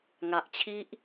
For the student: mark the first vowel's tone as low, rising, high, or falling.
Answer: low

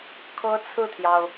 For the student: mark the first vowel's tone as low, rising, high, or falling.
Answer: high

